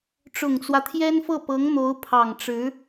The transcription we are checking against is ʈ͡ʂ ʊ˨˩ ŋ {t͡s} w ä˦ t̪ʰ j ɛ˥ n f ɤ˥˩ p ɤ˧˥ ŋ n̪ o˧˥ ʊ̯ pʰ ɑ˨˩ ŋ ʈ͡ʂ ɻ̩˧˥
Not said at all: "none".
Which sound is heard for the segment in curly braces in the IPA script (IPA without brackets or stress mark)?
t͡s